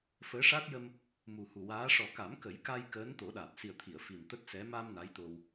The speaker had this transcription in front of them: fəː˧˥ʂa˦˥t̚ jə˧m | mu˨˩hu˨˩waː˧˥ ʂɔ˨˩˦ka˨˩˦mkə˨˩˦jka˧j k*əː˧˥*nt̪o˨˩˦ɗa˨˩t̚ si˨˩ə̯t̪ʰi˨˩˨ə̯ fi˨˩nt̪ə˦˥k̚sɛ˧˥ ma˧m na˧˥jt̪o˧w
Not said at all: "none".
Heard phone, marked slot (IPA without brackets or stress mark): əː˧˥